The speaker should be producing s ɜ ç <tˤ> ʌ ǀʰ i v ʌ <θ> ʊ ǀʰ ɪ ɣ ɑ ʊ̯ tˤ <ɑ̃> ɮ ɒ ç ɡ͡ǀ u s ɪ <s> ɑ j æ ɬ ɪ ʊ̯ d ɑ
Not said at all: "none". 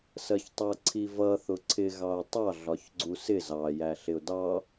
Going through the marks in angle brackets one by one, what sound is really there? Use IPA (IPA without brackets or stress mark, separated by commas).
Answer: tˤ, θ, ɑ, z